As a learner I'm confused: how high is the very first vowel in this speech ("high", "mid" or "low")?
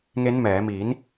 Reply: mid